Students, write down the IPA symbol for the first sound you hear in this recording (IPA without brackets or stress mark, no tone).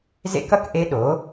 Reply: z